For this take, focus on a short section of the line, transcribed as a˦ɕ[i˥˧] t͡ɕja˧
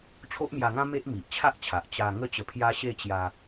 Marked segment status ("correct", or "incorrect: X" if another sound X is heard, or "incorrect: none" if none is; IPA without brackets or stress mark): incorrect: e˥˧